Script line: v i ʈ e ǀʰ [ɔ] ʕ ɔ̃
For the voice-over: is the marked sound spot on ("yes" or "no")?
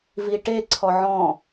yes